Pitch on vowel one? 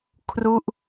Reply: falling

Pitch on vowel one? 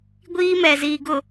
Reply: high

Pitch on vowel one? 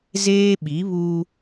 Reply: high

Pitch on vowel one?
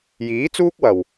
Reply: rising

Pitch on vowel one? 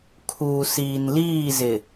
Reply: low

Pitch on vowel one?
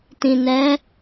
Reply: low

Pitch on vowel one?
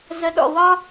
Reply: low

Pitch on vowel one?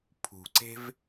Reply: low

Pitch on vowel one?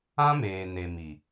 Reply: high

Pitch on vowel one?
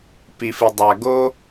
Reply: low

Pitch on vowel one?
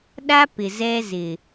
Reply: high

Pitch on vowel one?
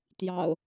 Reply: low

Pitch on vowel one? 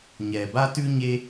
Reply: low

